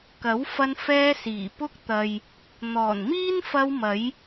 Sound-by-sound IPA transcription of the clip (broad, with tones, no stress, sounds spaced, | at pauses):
k ɐ˨˥ w f ɐ˧ n f ɛː˧ s iː˨˩ p ʊ˥ k̚ t̪ ɐ˨ j | n̪ ɔː˨˩ n m iː˥ n f ɐ˧ w m ɐ˨˧ j